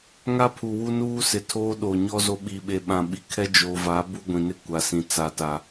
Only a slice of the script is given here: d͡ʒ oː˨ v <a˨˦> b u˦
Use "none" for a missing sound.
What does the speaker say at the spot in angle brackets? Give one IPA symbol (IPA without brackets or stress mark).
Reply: a˨˦